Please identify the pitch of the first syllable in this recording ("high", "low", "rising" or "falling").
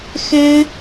high